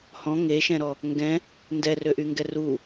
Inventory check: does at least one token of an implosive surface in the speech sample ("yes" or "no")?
no